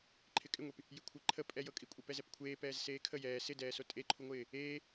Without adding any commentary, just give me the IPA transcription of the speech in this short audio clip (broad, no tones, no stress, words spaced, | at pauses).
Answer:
ǃʰɪkʼɪŋʷep | jɪkʷʰɪ ǃʰə pʼɛjɤkʼikʷʼe pɛzɛpkʷʰeː pɛːzseːkʰə jɛː sɪdɛːso tʼeǃʰuŋʷɪː | eː